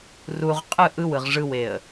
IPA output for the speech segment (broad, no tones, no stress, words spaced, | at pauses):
ruʁ qʼɯ ʔɯwɯʁ ʐɯweə̯